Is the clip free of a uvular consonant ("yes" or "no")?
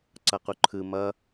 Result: no